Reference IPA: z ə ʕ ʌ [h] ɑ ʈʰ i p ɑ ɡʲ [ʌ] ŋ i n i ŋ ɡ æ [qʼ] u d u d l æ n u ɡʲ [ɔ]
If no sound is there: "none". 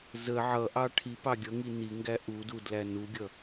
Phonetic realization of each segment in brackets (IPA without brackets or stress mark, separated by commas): ʔ, ʌ, ʔ, ʌ